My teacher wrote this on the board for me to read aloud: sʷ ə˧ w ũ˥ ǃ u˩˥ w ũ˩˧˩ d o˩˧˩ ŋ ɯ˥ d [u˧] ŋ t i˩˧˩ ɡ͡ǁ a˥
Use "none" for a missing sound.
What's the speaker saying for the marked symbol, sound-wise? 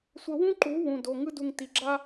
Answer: u˧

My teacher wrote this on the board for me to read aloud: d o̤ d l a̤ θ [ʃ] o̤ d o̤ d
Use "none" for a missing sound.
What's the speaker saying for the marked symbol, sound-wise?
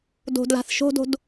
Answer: ʃ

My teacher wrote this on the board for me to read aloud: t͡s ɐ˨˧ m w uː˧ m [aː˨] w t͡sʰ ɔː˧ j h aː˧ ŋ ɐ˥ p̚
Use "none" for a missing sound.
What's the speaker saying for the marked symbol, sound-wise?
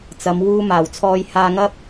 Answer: aː˨˩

